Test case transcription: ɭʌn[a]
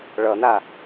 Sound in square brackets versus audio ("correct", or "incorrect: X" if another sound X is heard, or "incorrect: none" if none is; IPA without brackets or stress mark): correct